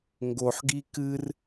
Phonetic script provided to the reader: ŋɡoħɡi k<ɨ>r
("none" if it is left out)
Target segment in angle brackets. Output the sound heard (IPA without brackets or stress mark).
ɨ